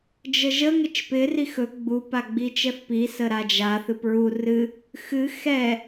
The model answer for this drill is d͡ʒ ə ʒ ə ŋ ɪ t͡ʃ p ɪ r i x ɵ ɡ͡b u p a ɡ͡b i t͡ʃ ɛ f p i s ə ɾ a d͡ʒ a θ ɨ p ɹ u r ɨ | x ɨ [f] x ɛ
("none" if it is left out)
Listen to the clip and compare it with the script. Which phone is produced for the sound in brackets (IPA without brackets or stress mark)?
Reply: none